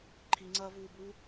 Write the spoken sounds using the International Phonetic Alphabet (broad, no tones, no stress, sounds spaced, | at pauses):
ǃʰ i ŋ͡ǀ ɐː v uː b uː